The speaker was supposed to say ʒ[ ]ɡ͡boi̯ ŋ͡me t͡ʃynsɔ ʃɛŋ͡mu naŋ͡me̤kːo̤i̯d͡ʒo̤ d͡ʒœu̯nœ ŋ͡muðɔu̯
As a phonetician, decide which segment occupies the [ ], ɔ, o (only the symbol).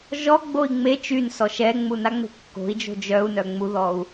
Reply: ɔ